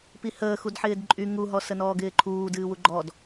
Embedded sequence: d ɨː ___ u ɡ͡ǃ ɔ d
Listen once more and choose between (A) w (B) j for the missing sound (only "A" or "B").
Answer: A